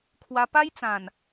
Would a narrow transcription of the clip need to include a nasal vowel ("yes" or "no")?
yes